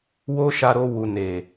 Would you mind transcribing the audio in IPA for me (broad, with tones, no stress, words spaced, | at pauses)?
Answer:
wo˦ ʃa˧ɾo˧wu˨ ne˨